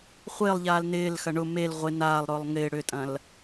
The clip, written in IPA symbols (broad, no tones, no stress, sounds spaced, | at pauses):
χʷ ɪː lˠ ʎ aː l n ɪː l x ɐ ɳ ʊ m e l ʁʷ ɪ n aː lˠ ɾ ʊː lˠ ŋ ɪː ɽ ʏ tʼ ɐ̃ l